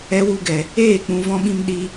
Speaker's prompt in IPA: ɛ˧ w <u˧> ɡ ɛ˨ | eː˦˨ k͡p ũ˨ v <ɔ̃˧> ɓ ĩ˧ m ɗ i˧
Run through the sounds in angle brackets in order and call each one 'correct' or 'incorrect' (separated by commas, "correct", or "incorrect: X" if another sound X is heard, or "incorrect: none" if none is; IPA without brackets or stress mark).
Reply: correct, correct